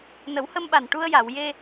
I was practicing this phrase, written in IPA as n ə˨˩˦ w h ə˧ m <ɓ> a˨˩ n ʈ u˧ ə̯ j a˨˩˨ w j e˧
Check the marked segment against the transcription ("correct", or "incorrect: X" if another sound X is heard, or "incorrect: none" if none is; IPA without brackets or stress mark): correct